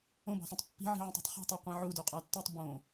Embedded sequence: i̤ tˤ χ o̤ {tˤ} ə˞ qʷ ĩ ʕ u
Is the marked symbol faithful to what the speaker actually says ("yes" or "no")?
yes